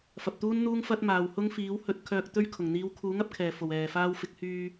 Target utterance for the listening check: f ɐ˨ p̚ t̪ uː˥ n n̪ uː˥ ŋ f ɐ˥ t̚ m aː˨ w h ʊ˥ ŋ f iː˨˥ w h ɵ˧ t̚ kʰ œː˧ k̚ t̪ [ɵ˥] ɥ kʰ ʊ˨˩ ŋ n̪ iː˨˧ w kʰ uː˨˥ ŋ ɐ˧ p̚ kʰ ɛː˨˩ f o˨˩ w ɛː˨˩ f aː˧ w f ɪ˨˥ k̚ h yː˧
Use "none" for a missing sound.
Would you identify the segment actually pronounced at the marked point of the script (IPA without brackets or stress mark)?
ɵ˥